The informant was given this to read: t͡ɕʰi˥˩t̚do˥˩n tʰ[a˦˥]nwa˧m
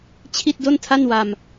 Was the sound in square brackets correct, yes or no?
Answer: no